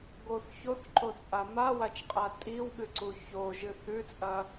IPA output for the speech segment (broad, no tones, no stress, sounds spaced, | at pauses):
ɡ o θ ç o θ ǃ o t͡sʼ a m a w a t͡ʃ qʼ a tʼ i w ɠ ɨ ǀ u ç o ʒ ɨ θ ʉ t͡sʼ ɐ